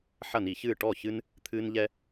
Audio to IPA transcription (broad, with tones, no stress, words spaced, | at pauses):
ħɐ˥˩ni˧˩˧çɨː˥˩ ʈɔ˥˩çɨ˦n | t̪ʰɨː˦nʎɛ˦